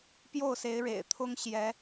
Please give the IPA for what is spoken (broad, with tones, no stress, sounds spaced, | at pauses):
p j o˥˨ ʊ̯ s e˨˦ ɪ̯ ɻ ḛ˨˩ ɪ̯ t̪ʰ ʊ˦ ŋ ɕ j ɛ˨˦